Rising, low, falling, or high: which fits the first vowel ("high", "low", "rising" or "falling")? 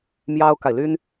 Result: high